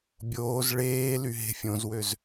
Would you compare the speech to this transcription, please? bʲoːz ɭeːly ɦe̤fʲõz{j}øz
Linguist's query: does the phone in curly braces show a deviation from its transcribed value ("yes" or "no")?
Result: yes